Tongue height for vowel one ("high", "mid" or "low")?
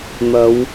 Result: low